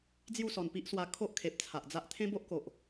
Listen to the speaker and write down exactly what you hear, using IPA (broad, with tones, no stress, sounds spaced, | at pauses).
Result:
d͡z j u˥˧ s ɔ˨˩ n p i˦ ʔ s w a˧ kʰ o˦ ʔ kʰ e˨ p̚ t͡sʰ a˨ ʔ d͡z a˦ ʔ t̪ʰ ẽ˦ b o˦ ʔ k o˨ ʔ